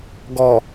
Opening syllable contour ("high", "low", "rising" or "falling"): low